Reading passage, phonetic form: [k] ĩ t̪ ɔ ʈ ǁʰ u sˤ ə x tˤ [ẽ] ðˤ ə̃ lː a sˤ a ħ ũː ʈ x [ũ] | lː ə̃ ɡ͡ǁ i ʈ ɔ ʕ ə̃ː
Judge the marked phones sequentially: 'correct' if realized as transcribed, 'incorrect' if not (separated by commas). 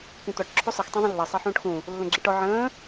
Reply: correct, correct, correct